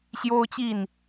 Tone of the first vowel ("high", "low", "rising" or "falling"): high